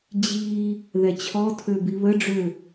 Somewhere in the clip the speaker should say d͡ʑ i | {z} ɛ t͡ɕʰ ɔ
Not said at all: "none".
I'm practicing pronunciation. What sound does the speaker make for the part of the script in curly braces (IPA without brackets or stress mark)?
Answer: ð